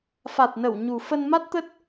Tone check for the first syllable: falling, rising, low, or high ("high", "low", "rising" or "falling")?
low